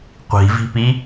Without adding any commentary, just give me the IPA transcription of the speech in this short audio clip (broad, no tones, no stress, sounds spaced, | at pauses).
qʷ i̤ v i̤ p i